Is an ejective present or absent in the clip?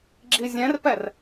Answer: absent